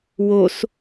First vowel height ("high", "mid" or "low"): mid